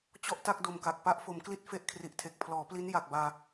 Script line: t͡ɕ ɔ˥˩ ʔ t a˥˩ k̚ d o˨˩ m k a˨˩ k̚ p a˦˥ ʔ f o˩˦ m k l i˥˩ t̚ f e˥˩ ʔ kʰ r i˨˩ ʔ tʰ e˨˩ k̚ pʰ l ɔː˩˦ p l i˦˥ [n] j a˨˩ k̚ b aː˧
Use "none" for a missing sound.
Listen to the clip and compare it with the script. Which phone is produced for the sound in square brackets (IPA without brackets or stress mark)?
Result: n